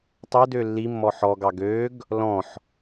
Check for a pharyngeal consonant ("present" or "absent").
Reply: present